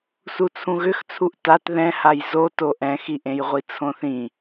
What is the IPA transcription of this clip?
s u t͡sʰ ũ ɣ ʏ x t͡sʰ u ʔ t a t ð ɛ̃ h a j z o t o ʔ ɛ̃ x i ʔ ẽ j ʁʷ i t͡sʰ õ θ ĩ

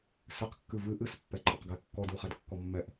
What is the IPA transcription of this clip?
s ɘ q kː ɨ v ɨ ʔ ɨ s pː ɛ ǃʼ ɘ q ɡ ɛ kː ɔ d u χ ɛ d kː ɔ mː ɛ ʔ

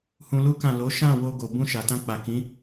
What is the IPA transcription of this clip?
h ũ˧ l u˦ k ã˦˨ l o˨˦ ʃ ã˦˨ w o˧ ɡ o˨ b ũ˧ ʃ a˨ t ã˧ k͡p a˨ k ĩ˨˦

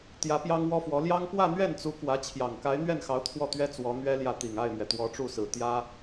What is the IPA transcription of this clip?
t̪ j ä˧˥ p j ɑ˥ ŋ w ɔ˥ f w ɔ˧˥ l j ɑ˥ ŋ p w ä˥˧ n̪ ɥ ɛ˥˩ n t͡s u˧˥ k w ä˧˥ t͡ɕʰ j ɑ˨˩ ŋ k a˧˥ ɪ̯ n̪ ɥ ɛ˥˩ n x ɑ˧˥ ʊ̯ t̪ʰ w ɔ˥˩ t̪ ɥ ɛ˥ t͡s w ɔ˧˥ n̪ ɥ ɛ˥ l j ä˥˩ t̪ i˨˩ ŋ a˥˩ ɪ̯ m ɥ ɛ˩ t̪ w ɔ˧˥ ʈ͡ʂ u˥˩ s ɹ̩˨˩ t̪ j ä˥

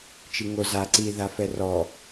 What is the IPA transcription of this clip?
t͡ʃ i ŋ o z a ǀ i ð a f ɛ r ɔ

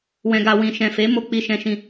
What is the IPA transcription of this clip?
w ɛ̃˨ ɡ a˨ w ĩ˨ ʃ ɛ̃˨ f e˨˦ m o˧ k͡p i˧ ʃ ɛ̃˧ ʃ ĩ˧

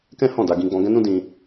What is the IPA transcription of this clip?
k ɛ̃˦ h ɔ̃˦˨ d a˧ ɡ ĩ˧ ɡ͡b ɔ̃˧ ɡ ɛ̃˦ n ũ˦ d ĩ˧

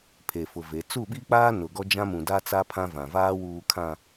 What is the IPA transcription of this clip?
pʰ e˨ f ʊ˨ v e˨˦ t͡s u˦˨ ɓ i˦ k͡p aː˦ n ʊ˨ ɡ ɔ˦ d͡ʒ ã˦ m ũ˨ d a˦ t͡s a˦ pʰ ã˦ v ã˨ v aː˦ w uː˨ kʰ ã˨

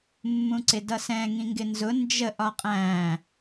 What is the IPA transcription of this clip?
mː ũ ǀ ɪ d ʌ s ɛ̃ ŋ ĩ ŋ ɡ ɪ n z ʊ n d͡ʒ ə ʔ ɒ qʼ æ̃

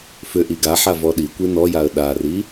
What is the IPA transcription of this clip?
f ʏ ʔ i ɡ a ħ a v ɔ ɗ i kʷ i n ɔ j a ə̯ ɗ a r i

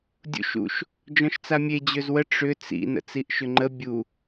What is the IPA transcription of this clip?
dʲ ṵ ʃ ṵ ʃ | d͡ʒ ɔ̃ ʃ t͡s a mʲ e d͡ʑ ø z w ə ʈ͡ʂ ʏ t͡s ḭ n ə̰ t͡s i ʔ ʃ ʏ ŋ͡ǃ ə bʲ u

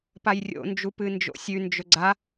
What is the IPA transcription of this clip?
p a j rʲ o̰ n d͡ʒ u p ɨ n d͡ʒ o̰ sʲ ʉ n d͡ʒ ɵ ɡ͡ǀ a

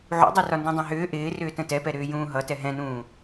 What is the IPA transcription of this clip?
ʕ ṵ dˤ i r ɒ n d ĩ dˤ ɛ̃ ɦ ʏː ʔ ɪː r ʏː t ə̃ t ɛ p ɛ ɾ ʏː j ũː ɦ ʌ t ɛ ɦ ɛ̃ n ũː

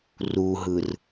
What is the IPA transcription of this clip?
r u ɦ ɯ r

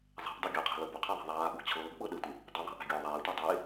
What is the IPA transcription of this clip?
zˤ ɛ̤ ʔ dˤ ɤ ɡʲ ɤ qʰ ɛ̤ l ɤ b ʊ qʰ e ðˤ ɛ̤ ðˤ aː ɠ ʊ ɡ t͡ɕʰ ɤː ɡ ɓ ɤ ɗ ɘ tʷ ɘ | dˤ ʊ ðˤ a̤ ʔ æ̤ ɡʲ ʊː ðˤ ɛː tʷ e dˤ e

